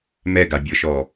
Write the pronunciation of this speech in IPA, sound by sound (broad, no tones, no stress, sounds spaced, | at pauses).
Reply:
m ɛ ɡ a bʲ ɤ ʃ ɔ